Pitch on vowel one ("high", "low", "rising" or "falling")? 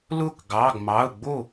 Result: falling